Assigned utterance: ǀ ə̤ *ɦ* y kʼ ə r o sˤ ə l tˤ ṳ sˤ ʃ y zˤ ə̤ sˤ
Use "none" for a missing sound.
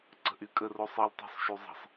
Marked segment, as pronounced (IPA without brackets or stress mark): ʔ